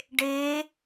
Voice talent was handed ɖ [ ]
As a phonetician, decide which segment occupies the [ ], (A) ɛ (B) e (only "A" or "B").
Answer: B